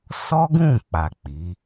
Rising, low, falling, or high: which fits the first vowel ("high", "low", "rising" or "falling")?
high